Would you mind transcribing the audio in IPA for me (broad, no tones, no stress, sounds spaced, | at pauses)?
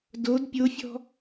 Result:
d o d pʲ o fʲ ɔ̤